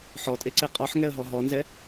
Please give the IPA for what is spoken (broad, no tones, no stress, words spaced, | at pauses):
ħɔtʼeǀe qʼɔħŋɛə̯ɦɔ ɦɔnzɛ